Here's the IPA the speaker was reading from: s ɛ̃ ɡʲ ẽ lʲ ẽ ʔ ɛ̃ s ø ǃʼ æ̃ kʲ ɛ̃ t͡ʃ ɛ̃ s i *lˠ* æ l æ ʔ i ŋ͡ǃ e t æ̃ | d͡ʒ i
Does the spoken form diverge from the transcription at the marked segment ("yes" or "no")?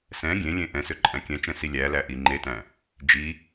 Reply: yes